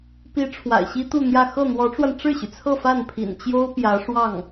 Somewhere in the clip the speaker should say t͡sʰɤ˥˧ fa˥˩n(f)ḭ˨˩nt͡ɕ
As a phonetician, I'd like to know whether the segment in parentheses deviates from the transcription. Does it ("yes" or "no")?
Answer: yes